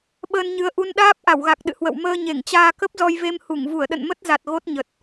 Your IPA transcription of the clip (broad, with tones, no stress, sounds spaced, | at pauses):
ɓ əː˧ n ɲ ɨ˨˦ ə̯ ʔ u˧ n ɗ aː˦˥ p̚ ʔ a˧˩ w ɣ a˨˩ k̚ ɗ ɨ̰˧˨ h w ə̰˧˨ w m əː˧ ɲ e˧˩ ŋ t͡ɕ aː˧ k ə˦˥ p̚ z ɔ˧ j v e˧ m h u˧˩ ŋ v u˧˩ ə̯ ɗ ə̰˧˨ n m ə˦˥ t̚ z a˨˩ t̚ ɣ o˦˥ t̚ ɲ ə˨˩ t̚